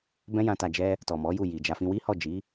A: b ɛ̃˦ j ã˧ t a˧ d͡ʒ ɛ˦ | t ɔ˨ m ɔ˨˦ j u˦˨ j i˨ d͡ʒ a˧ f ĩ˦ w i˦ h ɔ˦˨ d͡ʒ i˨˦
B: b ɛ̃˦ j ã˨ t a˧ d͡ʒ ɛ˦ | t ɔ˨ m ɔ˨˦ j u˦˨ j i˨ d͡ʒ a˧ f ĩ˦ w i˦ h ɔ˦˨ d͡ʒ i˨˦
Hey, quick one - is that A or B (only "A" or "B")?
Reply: A